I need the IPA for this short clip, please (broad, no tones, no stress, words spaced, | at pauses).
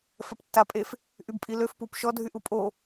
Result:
fɛptːapʼef | ʔybpʼiløf pupʃɔ dʱyʔupʼo